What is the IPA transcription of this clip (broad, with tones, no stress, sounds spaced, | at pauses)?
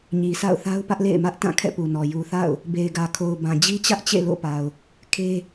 ɲ i˨ s a̰˦˨ ʊ̯ θ a˦ ʊ̯ p ä˦ ʔ l ḛ˦˨ ɪ̯ m ä˦ ʔ t ã˦˨ kʰ ɛ̰˦˨ p u˨ n ɔ˨ j u˨ θ a̰˦˨ ʊ̯ | b e˨ ɪ̯ ɡ ä˨ kʰ o˨ ʊ̯ b ã˨ d͡ʑ i˦ t͡ɕ ä˦ ʔ t͡ɕ ḛ˦˨ l o̰˦˨ p a˨ ʊ̯ | kʰ e˦